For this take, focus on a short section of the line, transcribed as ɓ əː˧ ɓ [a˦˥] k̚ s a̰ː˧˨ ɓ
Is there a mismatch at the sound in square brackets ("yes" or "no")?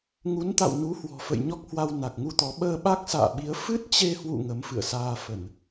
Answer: no